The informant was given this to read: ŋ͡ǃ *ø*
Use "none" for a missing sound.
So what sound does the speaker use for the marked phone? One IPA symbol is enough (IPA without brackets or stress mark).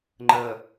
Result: ə